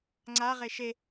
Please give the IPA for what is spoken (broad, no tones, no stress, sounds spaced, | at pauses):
ŋ͡ǀ a ʁ e ʃ e